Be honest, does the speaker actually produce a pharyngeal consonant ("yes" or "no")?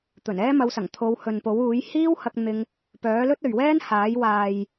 no